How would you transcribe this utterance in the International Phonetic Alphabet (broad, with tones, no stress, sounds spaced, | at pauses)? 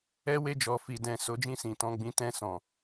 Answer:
ɛ˦ w e˦˨ d͡ʒ ɔ˨ f i˨ d ɛ̃˨ s o˨˦ d͡ʒ ĩ˦˨ s ĩ˨ t ɔ̃˧ ɡ͡b ĩ˦ t ɛ̃˦˨ s ɔ̃˨